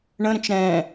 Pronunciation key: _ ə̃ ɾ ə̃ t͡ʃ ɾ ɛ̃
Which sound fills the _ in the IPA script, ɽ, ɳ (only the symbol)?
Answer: ɳ